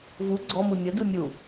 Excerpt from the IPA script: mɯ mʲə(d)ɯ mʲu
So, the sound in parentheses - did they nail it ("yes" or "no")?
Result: yes